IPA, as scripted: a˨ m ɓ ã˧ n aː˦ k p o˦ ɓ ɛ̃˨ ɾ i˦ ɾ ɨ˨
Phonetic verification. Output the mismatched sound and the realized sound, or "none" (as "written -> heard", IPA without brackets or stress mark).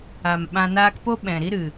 none